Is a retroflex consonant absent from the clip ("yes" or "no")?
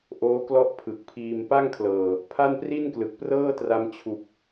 yes